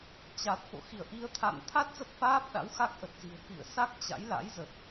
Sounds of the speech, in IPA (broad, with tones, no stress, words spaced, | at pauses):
t͡ɕa˨˩t̚fo̰˧˨ xi˧˩ə̯ʔi˧ə̯t̪ʰa̰˧˨n t̪ʰa˦˥t̚ zə˦˥p̚faː˦˥p̚ ɗa̰˧˥wxa˦˥k̚ʔə˨˩t̚zi̤˨˩ə̯ kḭ˧˨ə̯ sa˦˥k̚ t͡ɕa̰˧˥jla̰˧˥jzə˨˩t̚